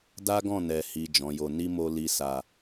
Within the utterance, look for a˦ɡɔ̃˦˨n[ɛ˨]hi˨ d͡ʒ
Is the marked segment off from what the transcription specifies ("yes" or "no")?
no